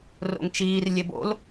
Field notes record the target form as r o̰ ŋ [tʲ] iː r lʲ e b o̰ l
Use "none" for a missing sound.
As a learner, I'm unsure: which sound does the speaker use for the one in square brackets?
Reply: t͡ʃ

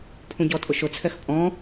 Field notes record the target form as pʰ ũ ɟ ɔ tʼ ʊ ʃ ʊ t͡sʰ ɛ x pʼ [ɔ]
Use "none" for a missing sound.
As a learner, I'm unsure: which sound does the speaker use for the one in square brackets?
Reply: ɔ̃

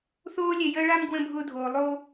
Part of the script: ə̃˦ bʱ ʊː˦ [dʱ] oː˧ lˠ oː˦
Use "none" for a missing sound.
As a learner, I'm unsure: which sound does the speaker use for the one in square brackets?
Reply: dʱ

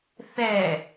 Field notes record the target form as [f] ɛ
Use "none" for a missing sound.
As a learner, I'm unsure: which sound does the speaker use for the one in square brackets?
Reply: θ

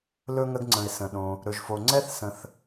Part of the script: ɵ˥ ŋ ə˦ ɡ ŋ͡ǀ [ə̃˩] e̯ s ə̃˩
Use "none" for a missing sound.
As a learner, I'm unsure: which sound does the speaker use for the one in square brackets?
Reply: ə̃˩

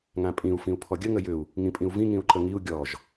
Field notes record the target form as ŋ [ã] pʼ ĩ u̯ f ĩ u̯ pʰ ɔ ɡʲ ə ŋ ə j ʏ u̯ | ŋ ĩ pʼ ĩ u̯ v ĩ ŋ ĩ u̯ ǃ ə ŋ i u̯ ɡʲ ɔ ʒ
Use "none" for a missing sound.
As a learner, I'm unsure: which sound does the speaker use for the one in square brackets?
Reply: ã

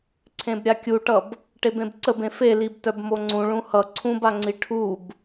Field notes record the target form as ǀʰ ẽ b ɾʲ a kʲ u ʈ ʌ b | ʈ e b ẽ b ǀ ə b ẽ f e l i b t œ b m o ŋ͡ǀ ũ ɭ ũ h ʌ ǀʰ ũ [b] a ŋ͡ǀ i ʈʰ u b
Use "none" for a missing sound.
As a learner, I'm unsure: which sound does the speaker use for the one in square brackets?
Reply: b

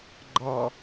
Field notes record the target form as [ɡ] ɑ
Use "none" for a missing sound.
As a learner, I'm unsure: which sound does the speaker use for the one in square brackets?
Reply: ɡ͡ǃ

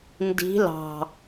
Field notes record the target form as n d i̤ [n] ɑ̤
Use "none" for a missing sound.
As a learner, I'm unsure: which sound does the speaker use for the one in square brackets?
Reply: l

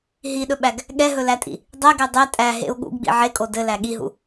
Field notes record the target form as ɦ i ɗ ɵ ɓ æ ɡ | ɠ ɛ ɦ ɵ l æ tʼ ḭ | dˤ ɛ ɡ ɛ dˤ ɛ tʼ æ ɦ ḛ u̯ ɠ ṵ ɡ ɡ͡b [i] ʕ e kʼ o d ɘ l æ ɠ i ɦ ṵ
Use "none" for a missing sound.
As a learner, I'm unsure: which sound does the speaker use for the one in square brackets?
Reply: ḭ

